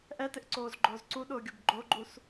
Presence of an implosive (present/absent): present